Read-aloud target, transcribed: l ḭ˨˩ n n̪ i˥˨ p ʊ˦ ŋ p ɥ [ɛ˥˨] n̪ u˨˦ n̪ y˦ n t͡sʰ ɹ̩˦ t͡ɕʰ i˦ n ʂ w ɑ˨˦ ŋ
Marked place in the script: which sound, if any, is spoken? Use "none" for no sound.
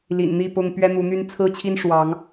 ɛ˦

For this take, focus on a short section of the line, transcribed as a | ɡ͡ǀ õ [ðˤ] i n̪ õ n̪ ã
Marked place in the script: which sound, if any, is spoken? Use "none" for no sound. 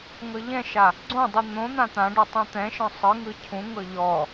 dˤ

